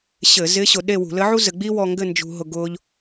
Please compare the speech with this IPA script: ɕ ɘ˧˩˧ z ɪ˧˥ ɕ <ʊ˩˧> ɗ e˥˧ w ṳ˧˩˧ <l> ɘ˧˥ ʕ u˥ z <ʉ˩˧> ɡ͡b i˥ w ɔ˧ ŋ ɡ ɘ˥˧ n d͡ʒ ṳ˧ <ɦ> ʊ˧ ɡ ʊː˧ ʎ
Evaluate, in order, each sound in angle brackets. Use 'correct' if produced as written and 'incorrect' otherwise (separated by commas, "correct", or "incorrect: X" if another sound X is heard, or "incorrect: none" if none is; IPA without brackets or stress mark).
correct, correct, incorrect: ɘ˩˧, correct